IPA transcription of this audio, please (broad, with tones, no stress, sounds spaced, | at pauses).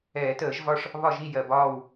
ɛː˨˩˦ t əː˨˩˦ ʒ v ɒ˥˨ ʂ | β ɒ˥˨ ʒ i˥˨ j ɜ˨˩ b ɒː˥˨ w